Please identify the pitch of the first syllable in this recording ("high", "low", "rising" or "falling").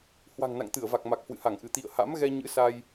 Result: low